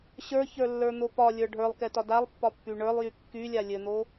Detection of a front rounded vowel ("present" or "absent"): present